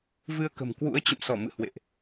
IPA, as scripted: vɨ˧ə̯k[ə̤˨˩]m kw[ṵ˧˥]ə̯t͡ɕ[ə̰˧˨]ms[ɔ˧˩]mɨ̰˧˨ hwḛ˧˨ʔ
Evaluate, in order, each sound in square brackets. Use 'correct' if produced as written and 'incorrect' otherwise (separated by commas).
correct, correct, correct, correct